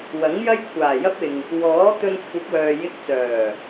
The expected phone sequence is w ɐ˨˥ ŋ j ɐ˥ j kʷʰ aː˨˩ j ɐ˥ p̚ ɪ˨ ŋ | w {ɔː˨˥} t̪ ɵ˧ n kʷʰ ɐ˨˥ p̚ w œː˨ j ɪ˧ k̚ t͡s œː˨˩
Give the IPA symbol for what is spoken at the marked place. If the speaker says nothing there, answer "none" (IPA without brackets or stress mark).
ɔː˨˥